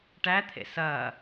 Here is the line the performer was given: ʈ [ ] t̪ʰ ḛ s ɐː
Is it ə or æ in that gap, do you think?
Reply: æ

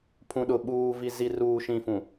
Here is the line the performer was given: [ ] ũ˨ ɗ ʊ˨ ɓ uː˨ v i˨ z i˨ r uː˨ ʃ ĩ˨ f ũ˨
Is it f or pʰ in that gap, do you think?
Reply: pʰ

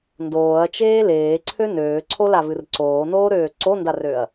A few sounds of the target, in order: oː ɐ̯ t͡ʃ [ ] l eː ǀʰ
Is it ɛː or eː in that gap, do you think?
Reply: eː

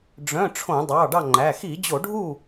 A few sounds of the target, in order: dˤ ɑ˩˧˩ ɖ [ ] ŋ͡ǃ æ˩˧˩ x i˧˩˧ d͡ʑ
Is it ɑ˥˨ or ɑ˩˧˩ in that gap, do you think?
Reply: ɑ˥˨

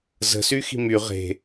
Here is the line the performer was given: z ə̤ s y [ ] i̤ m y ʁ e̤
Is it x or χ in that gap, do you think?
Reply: x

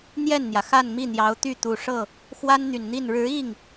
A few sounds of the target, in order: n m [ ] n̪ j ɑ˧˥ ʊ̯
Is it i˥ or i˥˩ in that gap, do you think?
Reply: i˥˩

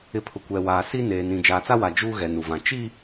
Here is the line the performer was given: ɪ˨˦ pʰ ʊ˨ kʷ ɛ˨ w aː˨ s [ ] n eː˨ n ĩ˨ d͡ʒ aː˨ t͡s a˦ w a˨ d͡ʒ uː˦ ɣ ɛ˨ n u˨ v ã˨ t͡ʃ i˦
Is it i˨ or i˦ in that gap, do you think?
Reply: i˦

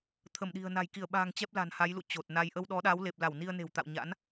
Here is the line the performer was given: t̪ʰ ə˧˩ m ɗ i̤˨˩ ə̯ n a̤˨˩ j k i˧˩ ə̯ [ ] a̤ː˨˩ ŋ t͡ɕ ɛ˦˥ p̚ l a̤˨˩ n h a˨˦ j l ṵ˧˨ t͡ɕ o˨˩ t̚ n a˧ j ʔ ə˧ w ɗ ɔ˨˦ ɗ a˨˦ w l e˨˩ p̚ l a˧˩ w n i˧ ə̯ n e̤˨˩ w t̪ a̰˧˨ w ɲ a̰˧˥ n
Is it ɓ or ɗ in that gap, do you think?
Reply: ɓ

